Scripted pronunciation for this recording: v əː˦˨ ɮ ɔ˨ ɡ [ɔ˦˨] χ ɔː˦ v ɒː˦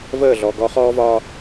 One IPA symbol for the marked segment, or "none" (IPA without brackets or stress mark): ɔ˦